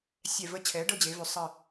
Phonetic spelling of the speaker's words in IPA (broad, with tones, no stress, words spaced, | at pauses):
sʲɛ˧˩və˧˥ t͡ɕʰɛ˩˥ə̯ɖɤ˥˧d͡ʑe˩˧vʉ˩˧ sˤə˧˩